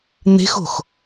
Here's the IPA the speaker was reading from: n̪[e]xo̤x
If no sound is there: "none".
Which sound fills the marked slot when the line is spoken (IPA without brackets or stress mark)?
e̤